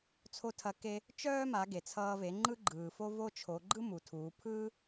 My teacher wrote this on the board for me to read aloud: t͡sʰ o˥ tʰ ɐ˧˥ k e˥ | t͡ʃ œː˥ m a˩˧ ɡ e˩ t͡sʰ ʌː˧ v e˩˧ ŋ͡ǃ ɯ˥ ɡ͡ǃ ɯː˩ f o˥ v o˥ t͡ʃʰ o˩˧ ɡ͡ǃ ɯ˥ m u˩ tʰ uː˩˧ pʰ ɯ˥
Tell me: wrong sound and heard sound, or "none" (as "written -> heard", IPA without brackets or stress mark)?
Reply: none